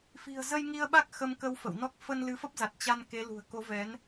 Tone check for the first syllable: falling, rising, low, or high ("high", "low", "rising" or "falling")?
low